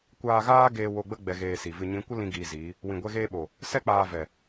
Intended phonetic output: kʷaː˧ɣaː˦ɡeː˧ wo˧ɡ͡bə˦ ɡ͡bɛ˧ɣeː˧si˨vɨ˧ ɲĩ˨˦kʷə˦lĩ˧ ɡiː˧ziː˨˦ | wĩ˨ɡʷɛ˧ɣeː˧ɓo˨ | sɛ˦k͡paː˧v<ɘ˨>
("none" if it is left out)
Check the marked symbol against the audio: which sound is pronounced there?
ɛ˨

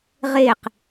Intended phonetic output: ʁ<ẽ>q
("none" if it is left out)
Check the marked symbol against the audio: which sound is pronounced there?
e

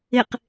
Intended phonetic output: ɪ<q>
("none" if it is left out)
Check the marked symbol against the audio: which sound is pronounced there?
q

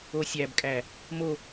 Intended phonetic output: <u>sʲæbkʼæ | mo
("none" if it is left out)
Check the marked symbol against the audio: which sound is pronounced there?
o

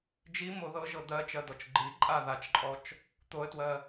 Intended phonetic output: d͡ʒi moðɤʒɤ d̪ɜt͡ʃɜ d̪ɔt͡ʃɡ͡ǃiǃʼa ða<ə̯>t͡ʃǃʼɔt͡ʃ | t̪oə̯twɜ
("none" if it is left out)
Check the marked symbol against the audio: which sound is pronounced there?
none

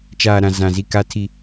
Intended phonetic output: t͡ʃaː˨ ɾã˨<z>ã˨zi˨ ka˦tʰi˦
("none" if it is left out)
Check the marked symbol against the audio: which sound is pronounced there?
z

